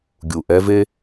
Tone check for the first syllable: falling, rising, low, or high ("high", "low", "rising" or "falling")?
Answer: low